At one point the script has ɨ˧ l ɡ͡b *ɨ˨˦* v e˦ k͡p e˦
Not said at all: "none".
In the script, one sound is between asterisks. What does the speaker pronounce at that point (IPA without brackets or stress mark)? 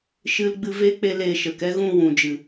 ɨ˧